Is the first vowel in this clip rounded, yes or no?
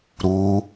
yes